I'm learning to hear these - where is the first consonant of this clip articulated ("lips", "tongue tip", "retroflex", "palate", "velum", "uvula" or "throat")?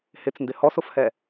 throat